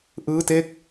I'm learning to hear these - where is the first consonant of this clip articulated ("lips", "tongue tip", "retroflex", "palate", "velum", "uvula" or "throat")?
throat